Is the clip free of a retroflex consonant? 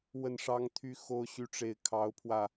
no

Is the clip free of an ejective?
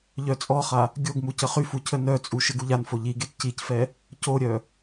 no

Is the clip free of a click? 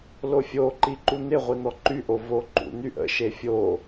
no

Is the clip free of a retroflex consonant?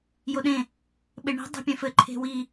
no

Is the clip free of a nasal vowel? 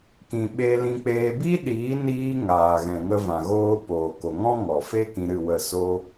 no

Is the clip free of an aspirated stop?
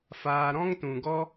yes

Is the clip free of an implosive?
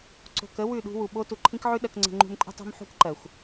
no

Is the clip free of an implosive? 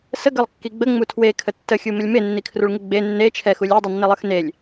yes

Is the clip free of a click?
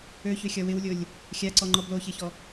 no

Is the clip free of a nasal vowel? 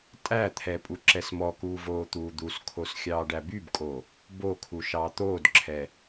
yes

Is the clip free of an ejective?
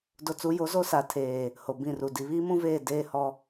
yes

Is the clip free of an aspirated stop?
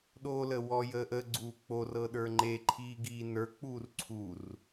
no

